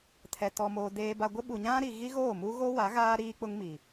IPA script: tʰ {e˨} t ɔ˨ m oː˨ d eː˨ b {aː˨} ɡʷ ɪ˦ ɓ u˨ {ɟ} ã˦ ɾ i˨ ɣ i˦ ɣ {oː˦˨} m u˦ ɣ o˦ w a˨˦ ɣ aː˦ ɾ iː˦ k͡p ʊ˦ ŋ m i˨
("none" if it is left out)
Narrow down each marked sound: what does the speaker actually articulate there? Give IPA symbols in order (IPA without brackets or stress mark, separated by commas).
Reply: ɛ˨, a˨, ɲ, oː˦˨